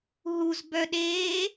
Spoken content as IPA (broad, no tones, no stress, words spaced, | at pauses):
ɦuzbœɗeː